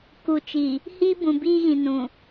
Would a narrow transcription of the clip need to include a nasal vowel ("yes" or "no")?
yes